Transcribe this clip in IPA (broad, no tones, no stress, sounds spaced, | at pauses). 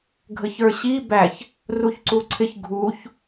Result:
ɡʱ ə ç ə˞ ɕ i b æ ç | r u ç ǀ u ǀʰ ɪ ç ɡʱ u ç